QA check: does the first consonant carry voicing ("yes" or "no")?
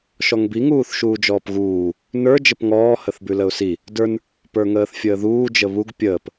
no